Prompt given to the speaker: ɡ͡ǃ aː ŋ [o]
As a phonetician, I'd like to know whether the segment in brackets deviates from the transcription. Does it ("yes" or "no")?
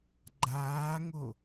no